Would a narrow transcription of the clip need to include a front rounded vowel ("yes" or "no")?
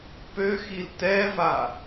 yes